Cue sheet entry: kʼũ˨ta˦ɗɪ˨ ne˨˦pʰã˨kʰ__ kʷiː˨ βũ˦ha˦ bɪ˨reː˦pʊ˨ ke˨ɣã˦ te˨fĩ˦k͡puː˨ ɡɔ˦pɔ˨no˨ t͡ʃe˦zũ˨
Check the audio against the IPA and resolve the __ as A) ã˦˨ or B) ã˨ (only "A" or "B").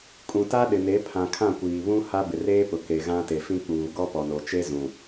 A